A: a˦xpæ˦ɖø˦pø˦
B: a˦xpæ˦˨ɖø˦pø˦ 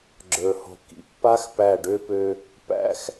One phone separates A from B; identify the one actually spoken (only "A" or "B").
B